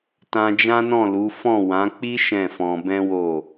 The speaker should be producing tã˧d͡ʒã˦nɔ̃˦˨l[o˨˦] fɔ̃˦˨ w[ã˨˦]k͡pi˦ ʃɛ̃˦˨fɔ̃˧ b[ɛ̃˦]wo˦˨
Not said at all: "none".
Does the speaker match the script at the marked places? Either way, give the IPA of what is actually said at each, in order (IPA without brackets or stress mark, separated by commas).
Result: u˨˦, ã˨˦, ɛ̃˦